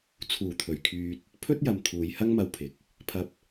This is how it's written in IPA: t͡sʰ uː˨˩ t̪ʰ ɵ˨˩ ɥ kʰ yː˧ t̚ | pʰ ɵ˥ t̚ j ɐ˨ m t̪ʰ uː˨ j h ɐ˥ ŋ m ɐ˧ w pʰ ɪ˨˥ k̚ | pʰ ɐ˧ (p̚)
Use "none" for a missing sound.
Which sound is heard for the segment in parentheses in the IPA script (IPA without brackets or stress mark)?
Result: p̚